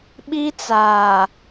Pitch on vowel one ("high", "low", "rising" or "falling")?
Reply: high